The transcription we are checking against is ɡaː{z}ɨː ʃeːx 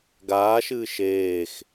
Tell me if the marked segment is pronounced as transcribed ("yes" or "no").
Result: no